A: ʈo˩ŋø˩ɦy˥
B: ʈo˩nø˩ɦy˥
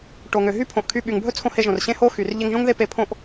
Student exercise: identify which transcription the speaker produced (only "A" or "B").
A